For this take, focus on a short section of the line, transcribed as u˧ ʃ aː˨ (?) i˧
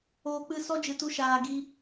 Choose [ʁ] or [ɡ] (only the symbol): ɡ